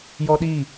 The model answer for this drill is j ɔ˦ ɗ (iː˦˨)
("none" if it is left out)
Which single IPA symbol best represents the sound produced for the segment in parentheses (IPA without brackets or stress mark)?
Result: iː˦˨